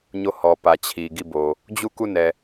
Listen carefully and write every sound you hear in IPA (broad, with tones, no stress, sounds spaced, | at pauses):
ɲ o˦˨ h ɔ˨ p ä˨ t͡ɕʰ i˨ ɡ i˦˨ b o˨ | d͡ʑ u˦˨ k u˦˨ n ɛ˨